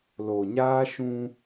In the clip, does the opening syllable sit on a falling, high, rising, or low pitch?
low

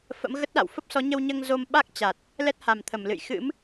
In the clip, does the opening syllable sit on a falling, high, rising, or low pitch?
rising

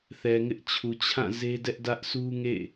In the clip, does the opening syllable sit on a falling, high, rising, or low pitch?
low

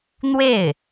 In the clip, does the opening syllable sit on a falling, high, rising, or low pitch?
falling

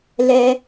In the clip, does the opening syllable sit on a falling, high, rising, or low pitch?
high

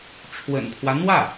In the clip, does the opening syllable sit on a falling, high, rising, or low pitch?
low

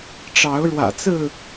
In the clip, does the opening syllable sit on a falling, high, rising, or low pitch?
rising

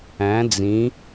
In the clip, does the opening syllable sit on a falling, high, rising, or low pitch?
rising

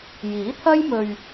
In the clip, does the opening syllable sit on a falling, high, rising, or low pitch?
rising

